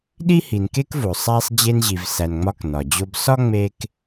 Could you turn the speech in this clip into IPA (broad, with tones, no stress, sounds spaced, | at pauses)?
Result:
ɗ i˥ h i˨ n k e˥ k v o˩ sˤ æ˦ sˤ d͡ʑ e˦ n ʑ i˨ v s æ˨ n ŋ͡m ɒ˦ k n ɒ˩ d͡ʑ o˦ b s ɒ˥ ŋ͡m e˦ k